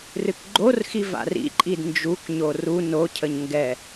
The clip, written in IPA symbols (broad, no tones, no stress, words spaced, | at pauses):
rɨkɡ͡ǃorxi va̰rḭǃʼid nd͡ʒukɲo ru nocʰəɲ ŋɡɛ